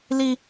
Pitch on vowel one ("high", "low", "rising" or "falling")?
high